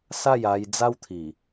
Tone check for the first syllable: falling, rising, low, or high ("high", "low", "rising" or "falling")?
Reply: falling